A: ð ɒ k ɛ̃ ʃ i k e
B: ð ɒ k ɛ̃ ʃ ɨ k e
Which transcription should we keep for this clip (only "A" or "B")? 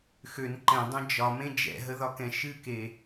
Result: B